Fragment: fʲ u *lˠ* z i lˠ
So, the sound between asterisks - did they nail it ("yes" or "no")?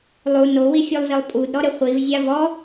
yes